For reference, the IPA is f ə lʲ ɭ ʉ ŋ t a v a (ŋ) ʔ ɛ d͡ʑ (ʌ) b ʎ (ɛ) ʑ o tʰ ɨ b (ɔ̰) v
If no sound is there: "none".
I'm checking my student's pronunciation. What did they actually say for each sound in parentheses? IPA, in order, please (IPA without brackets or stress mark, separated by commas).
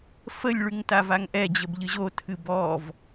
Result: ŋ, ə, ɨ, ɔ